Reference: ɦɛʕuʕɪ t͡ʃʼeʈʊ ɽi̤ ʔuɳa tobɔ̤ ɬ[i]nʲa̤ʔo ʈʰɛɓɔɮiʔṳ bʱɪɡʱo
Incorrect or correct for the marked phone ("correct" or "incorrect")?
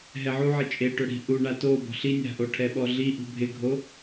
correct